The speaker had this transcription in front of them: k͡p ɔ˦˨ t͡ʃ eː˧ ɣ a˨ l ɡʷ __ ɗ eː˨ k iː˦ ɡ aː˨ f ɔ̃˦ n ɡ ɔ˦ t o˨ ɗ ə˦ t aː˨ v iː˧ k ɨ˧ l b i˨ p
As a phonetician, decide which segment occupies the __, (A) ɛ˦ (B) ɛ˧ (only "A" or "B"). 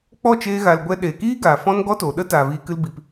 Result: B